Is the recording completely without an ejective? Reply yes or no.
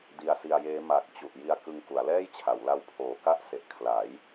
yes